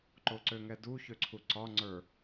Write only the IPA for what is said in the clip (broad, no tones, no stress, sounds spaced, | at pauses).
ǃ o ǀ ø ŋ ɛ d u ç ø ǀʰ u ǀ ɒ ŋ͡ǀ ə˞